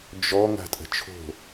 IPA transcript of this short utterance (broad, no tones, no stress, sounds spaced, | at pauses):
d͡ʒ ɔ ŋ a̤ tʼ ə̤ t͡ʃʰ o̤